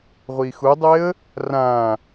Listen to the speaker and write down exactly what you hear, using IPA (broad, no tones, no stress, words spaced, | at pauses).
ʁʷixudˤeə̯ | rã